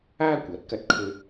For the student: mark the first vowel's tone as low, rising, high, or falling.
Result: high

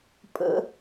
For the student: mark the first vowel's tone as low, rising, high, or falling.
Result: high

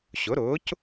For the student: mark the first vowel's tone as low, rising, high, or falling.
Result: rising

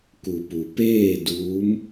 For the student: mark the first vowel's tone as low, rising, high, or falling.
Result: low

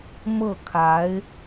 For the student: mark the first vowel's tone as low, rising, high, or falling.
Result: falling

